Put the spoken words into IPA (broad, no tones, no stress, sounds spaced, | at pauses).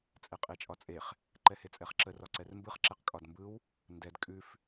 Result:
t͡sʼ ɛ qʼ e t͡ʃʼ ɒ t͡sʼ e χ | ǃ ɛ h e t͡sʼ ɛ χ ǁ ə r ɒ ǀ ɛ r m b ɯ χ ǁ ɛ q kʼ ɒ d m b ɯ w | n d ɛ d kʼ ʉ f